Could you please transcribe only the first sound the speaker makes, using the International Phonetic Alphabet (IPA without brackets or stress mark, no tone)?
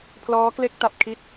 pʰ